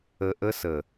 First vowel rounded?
no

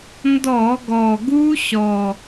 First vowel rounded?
yes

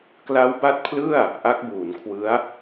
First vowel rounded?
no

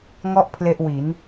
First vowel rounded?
yes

